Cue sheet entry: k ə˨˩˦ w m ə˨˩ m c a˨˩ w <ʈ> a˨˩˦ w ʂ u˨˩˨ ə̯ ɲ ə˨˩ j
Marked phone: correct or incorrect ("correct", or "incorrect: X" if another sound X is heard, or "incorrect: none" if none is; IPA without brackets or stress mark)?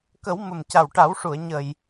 correct